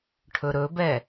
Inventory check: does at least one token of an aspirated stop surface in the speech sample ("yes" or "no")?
yes